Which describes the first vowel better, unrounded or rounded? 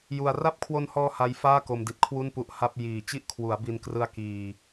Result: rounded